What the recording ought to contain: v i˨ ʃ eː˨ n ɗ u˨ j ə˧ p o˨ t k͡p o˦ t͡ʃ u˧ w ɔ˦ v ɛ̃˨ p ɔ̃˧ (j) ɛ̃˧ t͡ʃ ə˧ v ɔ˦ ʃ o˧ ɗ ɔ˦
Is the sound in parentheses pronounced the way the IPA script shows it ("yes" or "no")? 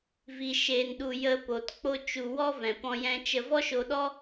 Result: yes